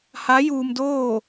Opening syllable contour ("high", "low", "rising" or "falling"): rising